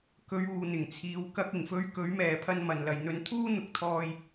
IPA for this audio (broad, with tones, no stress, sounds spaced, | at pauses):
k ɵ˨˧ ɥ uː˨ n̪ ɪ˨˩ ŋ t͡sʰ iː˨˧ w k ɐ˧ k̚ ɪ˨˩ ŋ f ɵ˧ ɥ k ɵ˨˥ ɥ m ɛː˨ pʰ ɐ˧ n m ɐ˨ n l ɐ˨ j n̪ ɵ˧ n t̪ʰ uː˥ n̪ ʊ˨ k̚ t̪ʰ ɔː˧ j